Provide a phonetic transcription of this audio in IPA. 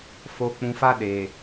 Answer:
f o˨ k͡p ũ˨ f a˦ ɗ e˨

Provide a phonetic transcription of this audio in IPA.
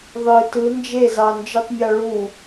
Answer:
ðˤ ɯ t ɯ n d͡ʒ e z ɑ n d͡ʒ ɯ tˤ mʲ ɑ ɭ u

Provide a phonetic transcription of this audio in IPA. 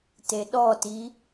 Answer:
t e ɗ ɔ t i

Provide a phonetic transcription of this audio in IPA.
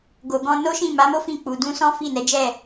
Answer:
ɡ o˨ ɡ ɔ̃˧ n o˦ ʃ ĩ˦˨ m a˨˦ m o˦ f ĩ˦˨ k͡p u˨ d ũ˧ s ɔ̃˦ f i˦˨ n ɛ˨˦ d͡ʒ ɛ˦˨

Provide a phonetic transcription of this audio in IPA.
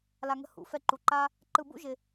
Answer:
l a˦ ŋ ə̤˦ h ṵ˨˦ f ɛ˦ ǃ u˧ ǃ a˦ | ǃ ɯ˧ b ṵ˦ ʒ ɪ˦

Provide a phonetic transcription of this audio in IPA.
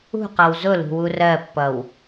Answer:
ṳ q ʌ w z ʊ l ṳ w u r ɜ pː ʌ w

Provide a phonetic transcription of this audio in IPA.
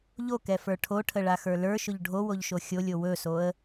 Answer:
ʎ o k ɛ f ə˞ ʈʰ o ʈʰ ə ɭ a x ə˞ l ə˞ ʃ ʊ ʎ ɖʱ o w o ʎ ʃ o xʲ o lʲ o w ɵ s o ə̯

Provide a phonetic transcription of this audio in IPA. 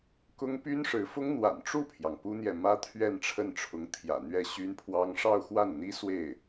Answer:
k ʊ˥ ŋ p y˥ n ʂ ɻ̩˧˥ f ʊ˥ ŋ n̪ w a̰˨˩ n ʈ͡ʂ u˥˩ pʰ j ɑ˩ ŋ p u˥ n̪ j ɛ˨ m ä˥ t̪ʰ ɥ ɛ˥˧ n ʈ͡ʂʰ ə˥˩ n ʈ͡ʂʰ ʊ˧˥ ŋ t̪ʰ j ä̰˨˩ n̪ ɥ ɛ˥˩ ɕ y˥ n pʰ w ɑ˥ ŋ ʂ ɑ˥˧ ʊ̯ x w a˥˩ n n̪ i˥ s w e˥˩ ɪ̯

